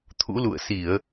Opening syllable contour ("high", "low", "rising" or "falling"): rising